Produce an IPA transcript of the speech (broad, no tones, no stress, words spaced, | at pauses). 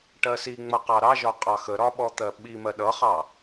ʈɜsiŋ͡mʌ qɑɾɑʒɒ qʼɑxəɾɒ ɓɔt̪ɜɓimɜ ɗʌχɑ